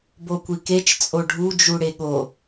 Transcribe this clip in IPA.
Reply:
b o kʷ i k e t͡ʃ t͡sʼ o ɖʱ u d͡ʒ u ɽ e ɠ o

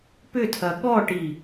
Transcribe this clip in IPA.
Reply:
p ʏ tʰ ɐ ɠ ɔ ʈ i

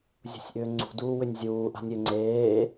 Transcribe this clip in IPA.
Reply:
zʲ ṳ sʲ ʔ ʏː ŋ͡ǀ ṳ d uː w ʏ nʲ zʲ uː ʔ a̤ nʲ ɘ ŋ͡ǀ eː

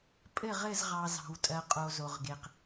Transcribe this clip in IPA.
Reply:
pʼ ɘ˦˨ ʁ ɘ˦˨ z ʁ ɑ˨ z ɑ̤˨ w tʼ ɜ˨ qʼ o˨ z o˨ ʁ ɡ e˨ q

